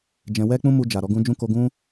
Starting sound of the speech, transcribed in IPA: d͡ʒ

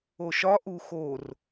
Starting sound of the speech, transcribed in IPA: o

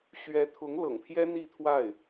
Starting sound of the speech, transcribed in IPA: ɕ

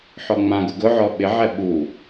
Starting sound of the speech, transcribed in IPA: ħ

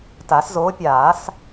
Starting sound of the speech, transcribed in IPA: t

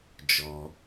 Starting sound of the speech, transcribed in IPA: d͡ʒ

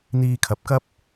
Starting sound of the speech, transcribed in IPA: n̪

